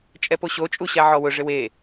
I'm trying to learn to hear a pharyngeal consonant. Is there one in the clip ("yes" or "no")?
yes